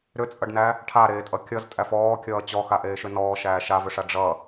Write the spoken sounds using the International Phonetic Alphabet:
ɾ ʏ t͡sʼ ʌ ɖ n æ | ʈʰ a ɾ eː tʼ ʌ kʲ ʌ z tʼ æ f ɔː kʲ ʌː t͡ɕ ɔ x a ʔ eː ʃ ʏ n ɔː ʃ æː ʃ a v ʏ ʂ a ɖ͡ʐ ʌ

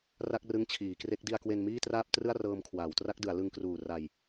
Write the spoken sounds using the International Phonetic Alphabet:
r a˥˩ k̚ r ɯ˦˥ ŋ t͡ɕʰ iː˩˦ k r e˦˥ k̚ d i˧ a̯ k w e˧ n m iː˥˩ t r aː˥˩ p̚ t r ɯ˥˩ a̯ r ɤː˧ m kʰ w aː˩˦ w t r a˦˥ k̚ d ɯ˩˦ a̯ l ɯ˧ ŋ k r uː˨˩ r a˧ j

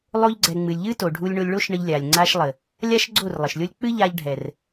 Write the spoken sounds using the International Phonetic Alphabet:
lˠ o˦ ʎ ɡ͡ǀ ɛ˨ ŋ͡m ɨ˨ lʲ ʎ ɨ˦ t o˨ ɖʱ u˧ lʲ ɳ o˧ lʲ ɭ o˦ ʃ ɳ ə˧ ʎ lʲ a˨ lʲ ŋ͡ǀ a˧ ʃ lˠ ə˨ | lʲ a˦ ʃ ɡ͡ǀ o˦˨ r lˠ ə˨ ʃ lʲ o˦ lʲ k͡p ɨ˦ ʎ a˧ ʎ ɖʱ ɛ˨ r

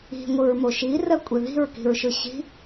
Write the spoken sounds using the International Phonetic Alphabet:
i̤ ŋʷ ɯ ɹ m o ʃ i r ɜ kʷʼ e ð i̤ ɹ k i̤ ɹ ʃ ɯ ɕ i̤

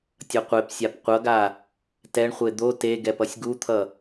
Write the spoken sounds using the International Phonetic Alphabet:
tʲ ʌ qʷ e p sʲ a p qʷ ʌ ɡ a | t ɛ ɳ χʷ e d̪ o t e ɡ ɛ p ʌ sʲ ɡ u t̪ʰ ʌ

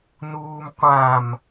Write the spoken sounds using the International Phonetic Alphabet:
n uː m qʷ ã m

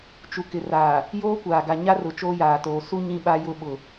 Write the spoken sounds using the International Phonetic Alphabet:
t͡ʃ u˨ k ɪ˨ r aː˨ | j oː˦ kʷ aː˨ ɡ a˨ ɲ a˦ r ʊ˨ t͡ʃ oː˦ j aː˨ t oː˨ s u˦ ɲ ĩ˦ ɓ a˦ j ʊ˦ ɓ ʊ˨

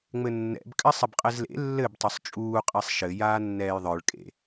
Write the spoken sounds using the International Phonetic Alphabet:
ŋ͡m ɘ nː ɛ̰ b kʼ ɘ sˤ ɘ b qʼ ɘ z l ḛ lː ɘ b tˤ o sˤ t͡ʃʼ uː qʼ ɛ sˤ ʃ ɘ j aː nː ɛː j ðˤ ə˞ ɭ kʼ ḛ

